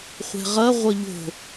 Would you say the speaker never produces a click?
yes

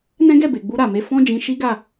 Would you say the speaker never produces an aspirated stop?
yes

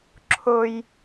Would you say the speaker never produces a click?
no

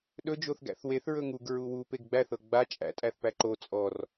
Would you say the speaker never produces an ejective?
no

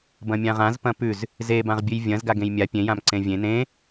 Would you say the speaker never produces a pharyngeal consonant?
yes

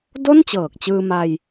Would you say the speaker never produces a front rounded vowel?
yes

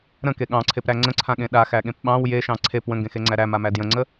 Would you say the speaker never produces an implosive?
no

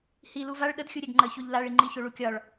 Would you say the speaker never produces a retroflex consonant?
no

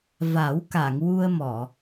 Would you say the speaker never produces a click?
yes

